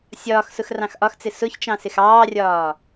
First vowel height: low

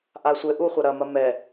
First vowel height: low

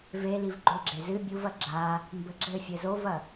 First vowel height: mid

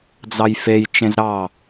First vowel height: low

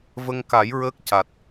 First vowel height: mid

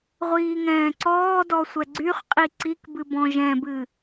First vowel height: high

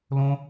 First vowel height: mid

